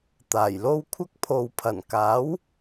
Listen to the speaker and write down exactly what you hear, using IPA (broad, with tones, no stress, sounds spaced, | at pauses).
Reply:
t̪ aː˨˩ j l o˥ w kʷʰ ɐ˥ k̚ pʰ o˨ w pʰ ɐ˨˩ n k aː˨˥ w